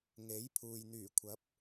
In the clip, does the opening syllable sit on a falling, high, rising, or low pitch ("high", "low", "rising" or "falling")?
rising